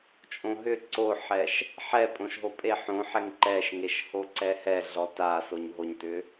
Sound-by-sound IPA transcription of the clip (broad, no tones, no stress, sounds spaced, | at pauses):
t͡ʃʼ õ ɦ ʏ ǀ o ħ ɛ ʃ | ħ ɛ pʼ õ ʃ ɦ o pʼ e ħ õ ħ ɛ ŋ ǃ ɛ ʃ ŋ e ʃ h o ǀ ɛ h ɛ ɮ ɔ t a s o ɲ ɦ o ɲ t ʏ